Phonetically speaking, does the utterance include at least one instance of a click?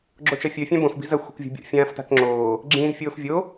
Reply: yes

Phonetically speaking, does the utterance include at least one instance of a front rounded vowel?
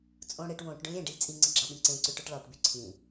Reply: yes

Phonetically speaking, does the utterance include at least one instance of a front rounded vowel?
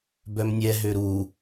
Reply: yes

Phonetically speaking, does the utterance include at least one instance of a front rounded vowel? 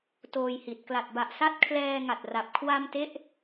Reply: no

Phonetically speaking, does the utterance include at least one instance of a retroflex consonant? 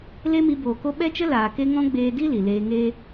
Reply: no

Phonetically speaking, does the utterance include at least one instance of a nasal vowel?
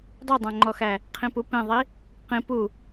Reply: yes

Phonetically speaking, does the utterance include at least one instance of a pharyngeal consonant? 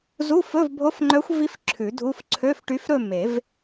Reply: no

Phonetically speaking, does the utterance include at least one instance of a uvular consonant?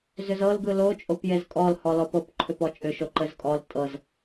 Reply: no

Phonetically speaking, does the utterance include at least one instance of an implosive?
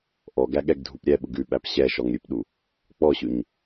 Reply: yes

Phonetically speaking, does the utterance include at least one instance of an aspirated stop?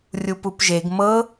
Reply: no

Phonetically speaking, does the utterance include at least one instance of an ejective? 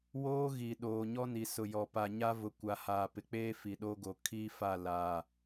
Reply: no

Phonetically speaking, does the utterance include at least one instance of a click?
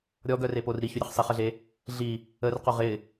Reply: no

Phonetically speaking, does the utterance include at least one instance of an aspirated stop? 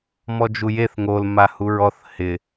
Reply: no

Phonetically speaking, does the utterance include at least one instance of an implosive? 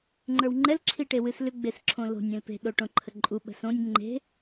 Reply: yes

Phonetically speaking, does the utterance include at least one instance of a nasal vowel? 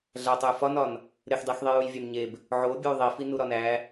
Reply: no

